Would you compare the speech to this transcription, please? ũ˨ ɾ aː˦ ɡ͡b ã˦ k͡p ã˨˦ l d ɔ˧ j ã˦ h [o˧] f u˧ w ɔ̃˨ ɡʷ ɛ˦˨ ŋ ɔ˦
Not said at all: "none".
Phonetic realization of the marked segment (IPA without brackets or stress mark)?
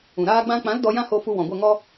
o˧